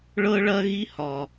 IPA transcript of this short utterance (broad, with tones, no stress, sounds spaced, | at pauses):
ɭ ɤ˦ ɭ ɐ˦ ɣ i˦ h ɒ˨